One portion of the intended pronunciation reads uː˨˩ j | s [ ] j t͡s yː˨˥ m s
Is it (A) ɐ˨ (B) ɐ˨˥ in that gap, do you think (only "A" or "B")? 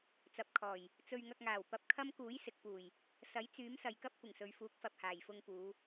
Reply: B